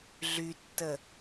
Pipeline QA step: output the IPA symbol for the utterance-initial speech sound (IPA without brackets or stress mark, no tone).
ɮ